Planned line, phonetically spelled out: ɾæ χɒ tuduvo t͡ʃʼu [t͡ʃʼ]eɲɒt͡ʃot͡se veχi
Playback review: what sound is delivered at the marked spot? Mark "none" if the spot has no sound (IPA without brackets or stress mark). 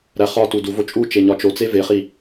t͡ʃ